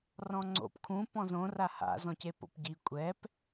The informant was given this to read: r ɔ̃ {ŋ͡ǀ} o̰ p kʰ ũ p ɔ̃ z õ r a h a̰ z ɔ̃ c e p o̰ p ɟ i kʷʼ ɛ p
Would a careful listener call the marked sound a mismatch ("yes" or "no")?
no